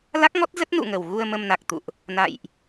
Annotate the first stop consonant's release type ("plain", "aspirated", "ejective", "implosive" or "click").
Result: plain